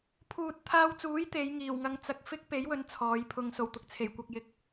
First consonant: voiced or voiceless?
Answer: voiceless